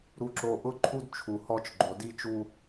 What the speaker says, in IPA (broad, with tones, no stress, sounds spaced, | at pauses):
ɾ u˨ ǁ o˨ ʔ ʊ˦ ǃʰ u˦ d t͡ʃʰ u˨ h ɔ˦ t͡ʃ ɡ͡ǃ o˨ d i˦ t͡ʃ u˦